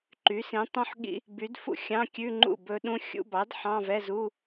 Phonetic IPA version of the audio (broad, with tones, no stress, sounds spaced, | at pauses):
ǃ y˩˥ s ĩ˩˥ tˤ ũ˦˥ ħ ɠ ḭ˦˥ | b y˩˥ d f ṵ˥˩ xʲ ɑ̃˧˥˧ kʲ ʉ˧˥˧ ŋ͡ǃ ṵ˥˩ b ɵ˦˥ ɗ ũ˧˥˧ xʲ ṵ˧˥˧ b ɑ˩˥ d ħ ɑ̃˧˥˧ v ɛ˧˥˧ z u˧˥˧